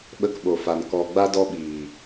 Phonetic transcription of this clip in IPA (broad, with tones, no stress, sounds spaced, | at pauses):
ɓ ə˧ k ɓ o˨ f a˨ n k ɔ˨ ɡ͡b a˧ d ɔ˧ ɓ iː˨